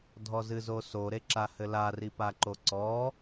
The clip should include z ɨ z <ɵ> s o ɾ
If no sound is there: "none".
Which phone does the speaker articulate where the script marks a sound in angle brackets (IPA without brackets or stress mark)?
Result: o